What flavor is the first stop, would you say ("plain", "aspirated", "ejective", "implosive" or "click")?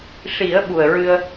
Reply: implosive